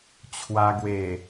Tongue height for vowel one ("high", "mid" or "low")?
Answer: low